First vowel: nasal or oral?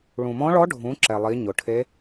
nasal